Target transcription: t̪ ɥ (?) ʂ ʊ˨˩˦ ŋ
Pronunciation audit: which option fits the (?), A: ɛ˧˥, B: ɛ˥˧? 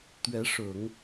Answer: A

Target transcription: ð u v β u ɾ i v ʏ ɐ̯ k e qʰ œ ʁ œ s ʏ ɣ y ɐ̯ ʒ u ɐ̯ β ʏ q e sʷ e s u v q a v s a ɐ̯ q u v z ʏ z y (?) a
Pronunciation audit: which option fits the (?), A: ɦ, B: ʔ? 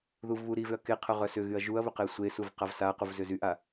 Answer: B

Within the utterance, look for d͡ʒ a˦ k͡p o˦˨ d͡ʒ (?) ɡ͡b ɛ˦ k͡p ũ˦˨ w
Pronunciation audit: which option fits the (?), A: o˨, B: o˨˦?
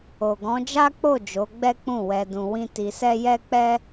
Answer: B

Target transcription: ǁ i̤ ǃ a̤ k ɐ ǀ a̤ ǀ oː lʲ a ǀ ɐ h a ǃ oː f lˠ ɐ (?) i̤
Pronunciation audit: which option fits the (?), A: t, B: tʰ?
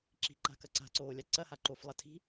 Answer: B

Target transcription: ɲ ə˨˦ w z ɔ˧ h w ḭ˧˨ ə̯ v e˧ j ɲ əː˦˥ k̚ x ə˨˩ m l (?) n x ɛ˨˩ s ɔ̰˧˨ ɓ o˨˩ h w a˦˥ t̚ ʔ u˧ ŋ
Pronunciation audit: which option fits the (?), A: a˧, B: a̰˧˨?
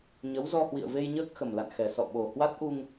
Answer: B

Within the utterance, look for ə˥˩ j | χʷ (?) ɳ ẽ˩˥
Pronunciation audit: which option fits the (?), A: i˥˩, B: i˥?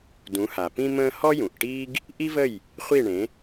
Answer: A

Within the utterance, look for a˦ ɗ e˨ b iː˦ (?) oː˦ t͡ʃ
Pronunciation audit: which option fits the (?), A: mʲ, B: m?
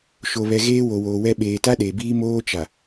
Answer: B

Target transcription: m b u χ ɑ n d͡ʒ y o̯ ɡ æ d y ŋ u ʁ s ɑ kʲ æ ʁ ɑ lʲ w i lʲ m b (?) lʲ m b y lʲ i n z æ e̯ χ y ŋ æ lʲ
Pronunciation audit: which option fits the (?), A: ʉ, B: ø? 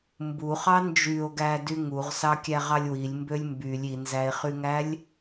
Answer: B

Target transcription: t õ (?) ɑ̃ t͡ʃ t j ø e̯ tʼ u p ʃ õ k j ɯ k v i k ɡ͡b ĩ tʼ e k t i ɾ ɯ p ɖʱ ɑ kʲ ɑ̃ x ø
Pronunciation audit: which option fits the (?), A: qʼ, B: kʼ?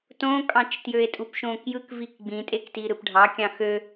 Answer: B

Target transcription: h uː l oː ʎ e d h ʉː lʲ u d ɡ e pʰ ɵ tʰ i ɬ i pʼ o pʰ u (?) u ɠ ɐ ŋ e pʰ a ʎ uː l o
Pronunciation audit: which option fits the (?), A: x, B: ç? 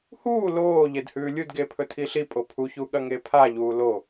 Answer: B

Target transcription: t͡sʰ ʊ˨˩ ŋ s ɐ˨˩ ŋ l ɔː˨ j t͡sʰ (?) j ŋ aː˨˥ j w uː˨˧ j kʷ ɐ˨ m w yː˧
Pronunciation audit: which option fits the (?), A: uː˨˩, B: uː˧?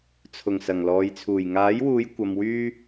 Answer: A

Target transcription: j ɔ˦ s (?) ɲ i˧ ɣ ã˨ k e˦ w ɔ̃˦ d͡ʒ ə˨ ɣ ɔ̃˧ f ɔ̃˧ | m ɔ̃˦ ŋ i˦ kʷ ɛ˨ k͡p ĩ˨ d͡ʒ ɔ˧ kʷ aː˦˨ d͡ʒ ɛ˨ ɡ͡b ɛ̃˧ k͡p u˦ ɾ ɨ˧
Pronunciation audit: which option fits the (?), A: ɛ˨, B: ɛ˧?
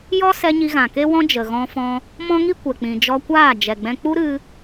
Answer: B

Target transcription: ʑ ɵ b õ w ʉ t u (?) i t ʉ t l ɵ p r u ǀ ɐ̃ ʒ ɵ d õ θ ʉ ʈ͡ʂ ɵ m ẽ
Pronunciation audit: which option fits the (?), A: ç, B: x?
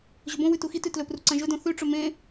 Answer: B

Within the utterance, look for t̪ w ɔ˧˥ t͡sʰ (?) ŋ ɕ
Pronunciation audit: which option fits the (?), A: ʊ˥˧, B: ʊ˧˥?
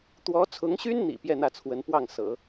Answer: B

